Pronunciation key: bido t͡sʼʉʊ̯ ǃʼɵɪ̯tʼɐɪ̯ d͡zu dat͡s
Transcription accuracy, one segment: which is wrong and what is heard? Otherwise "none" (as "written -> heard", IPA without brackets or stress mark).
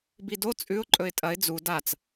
none